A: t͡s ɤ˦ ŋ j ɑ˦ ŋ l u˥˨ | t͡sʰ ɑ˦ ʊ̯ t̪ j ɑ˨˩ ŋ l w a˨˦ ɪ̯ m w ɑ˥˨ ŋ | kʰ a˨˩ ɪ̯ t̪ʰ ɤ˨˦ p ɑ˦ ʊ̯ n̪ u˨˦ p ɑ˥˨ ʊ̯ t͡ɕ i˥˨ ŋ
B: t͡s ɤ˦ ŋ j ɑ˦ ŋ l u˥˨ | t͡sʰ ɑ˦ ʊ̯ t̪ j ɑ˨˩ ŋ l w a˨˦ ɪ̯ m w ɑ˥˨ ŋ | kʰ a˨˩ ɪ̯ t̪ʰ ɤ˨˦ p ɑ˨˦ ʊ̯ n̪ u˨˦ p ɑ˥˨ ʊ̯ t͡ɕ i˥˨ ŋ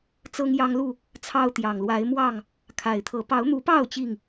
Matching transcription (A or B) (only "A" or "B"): B